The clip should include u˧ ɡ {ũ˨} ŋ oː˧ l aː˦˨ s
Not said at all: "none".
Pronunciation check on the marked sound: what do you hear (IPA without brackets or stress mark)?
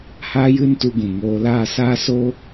ũ˨